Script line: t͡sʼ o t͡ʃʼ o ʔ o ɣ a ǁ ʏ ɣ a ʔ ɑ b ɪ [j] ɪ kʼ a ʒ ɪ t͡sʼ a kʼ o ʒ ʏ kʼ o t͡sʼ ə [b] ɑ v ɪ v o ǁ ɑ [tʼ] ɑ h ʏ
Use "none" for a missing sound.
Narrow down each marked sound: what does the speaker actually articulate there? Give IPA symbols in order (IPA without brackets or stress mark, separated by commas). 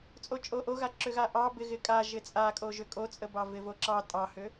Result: ɣ, b, tʼ